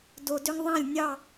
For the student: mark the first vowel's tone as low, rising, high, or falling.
low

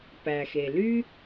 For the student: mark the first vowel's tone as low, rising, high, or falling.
low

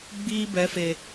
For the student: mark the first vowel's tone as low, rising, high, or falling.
high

